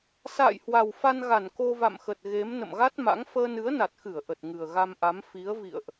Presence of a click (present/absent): absent